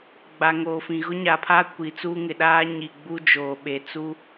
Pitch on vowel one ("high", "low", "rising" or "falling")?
low